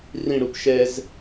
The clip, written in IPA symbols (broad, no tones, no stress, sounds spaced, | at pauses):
r ĩ ɽ u p ʃ ɛ z